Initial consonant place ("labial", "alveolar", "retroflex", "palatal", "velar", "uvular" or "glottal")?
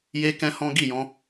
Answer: palatal